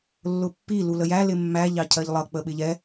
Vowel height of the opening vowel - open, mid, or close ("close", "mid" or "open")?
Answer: close